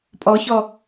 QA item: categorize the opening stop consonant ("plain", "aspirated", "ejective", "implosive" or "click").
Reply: ejective